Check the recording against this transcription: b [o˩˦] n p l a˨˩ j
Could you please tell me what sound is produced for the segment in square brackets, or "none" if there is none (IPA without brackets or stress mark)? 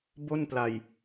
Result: o˥˩